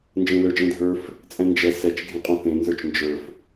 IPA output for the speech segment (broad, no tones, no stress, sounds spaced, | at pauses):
n d͡ʒ ẽ l ə˞ d͡ʒ ẽ dʱ ə˞ f | t͡sʼ ɛ̃ n d͡ʒ ɛ s ɛ t͡ʃ ɡʱ ẽ qʼ õ θ ẽ n z ə˞ t͡ʃ n d͡ʒ ə˞ f